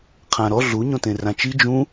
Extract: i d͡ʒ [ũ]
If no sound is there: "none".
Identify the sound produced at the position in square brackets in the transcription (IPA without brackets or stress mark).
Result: ũ